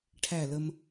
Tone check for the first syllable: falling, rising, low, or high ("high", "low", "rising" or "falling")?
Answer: falling